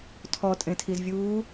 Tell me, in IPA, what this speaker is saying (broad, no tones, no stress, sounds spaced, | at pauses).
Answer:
tʰ ɔ tʼ ẽ tʰ i z vʲ uː